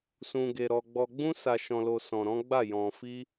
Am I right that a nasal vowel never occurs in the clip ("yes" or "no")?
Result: no